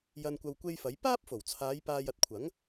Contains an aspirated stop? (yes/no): yes